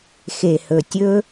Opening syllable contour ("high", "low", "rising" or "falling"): low